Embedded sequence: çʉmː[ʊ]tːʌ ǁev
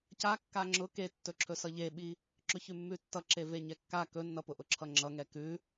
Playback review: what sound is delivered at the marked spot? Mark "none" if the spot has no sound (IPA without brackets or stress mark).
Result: ʉ